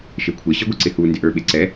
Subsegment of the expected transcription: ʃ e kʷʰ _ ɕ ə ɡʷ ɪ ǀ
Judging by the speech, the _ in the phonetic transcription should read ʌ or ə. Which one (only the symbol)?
ə